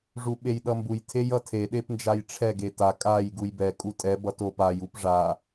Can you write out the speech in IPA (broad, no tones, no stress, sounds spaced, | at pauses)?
ʐ u ɓ e j ɗ ʌ m b u j tʰ e j ʌ tʰ e ɗ e p n d͡ʒ a j ʈ͡ʂʰ ɛ ɡ e t a kʼ a j ɡ u j b ɛ kʼ u tʼ ɛ b ʌ t o p a j u p ʐ a